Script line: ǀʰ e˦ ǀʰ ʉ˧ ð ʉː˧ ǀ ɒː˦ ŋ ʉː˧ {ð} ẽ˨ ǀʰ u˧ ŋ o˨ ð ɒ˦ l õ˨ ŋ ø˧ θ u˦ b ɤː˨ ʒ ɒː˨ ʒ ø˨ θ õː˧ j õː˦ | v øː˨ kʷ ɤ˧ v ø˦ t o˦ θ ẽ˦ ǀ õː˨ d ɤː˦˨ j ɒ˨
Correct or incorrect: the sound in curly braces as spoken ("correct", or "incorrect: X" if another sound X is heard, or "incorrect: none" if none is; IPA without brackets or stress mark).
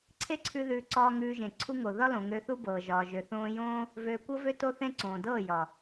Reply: incorrect: ʒ